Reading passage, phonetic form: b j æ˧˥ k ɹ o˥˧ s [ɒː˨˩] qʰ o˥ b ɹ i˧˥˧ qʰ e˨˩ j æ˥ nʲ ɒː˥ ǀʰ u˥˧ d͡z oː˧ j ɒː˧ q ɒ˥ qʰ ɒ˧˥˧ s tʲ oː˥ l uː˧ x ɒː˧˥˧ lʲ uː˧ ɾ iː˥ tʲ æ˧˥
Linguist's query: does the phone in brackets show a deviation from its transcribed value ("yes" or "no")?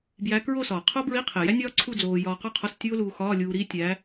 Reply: no